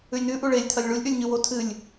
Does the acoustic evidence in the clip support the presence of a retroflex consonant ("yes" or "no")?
yes